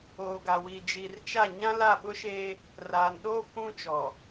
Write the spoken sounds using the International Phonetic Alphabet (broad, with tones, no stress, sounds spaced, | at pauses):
oː˨ ɡ a˨ w iː˨ d͡ʒ iː˨ r t͡ʃ a˦˨ ɲ ã˦ l a˦˨ ɓ ʊ˦ ʃ eː˦ | r aː˨ n ɗ oː˦ kʷ ũ˦ t͡ʃ ɔ˨